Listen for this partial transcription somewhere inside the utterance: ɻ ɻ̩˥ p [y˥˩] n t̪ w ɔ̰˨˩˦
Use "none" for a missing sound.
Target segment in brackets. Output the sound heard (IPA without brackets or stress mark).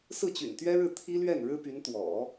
y˧˥